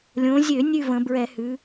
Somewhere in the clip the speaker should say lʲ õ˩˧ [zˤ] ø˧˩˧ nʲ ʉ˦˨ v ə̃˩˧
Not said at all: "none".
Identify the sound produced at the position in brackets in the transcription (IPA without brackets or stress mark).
zʲ